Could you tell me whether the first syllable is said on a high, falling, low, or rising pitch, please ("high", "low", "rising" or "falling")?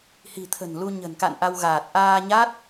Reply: low